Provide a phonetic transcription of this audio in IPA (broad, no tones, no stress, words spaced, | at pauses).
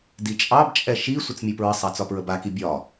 dit͡ʃʼɑbt͡ʃʼɛ ʃi sʷət͡smʲɯpɹəsˤa t͡sɒpɹəbaki bʲɒ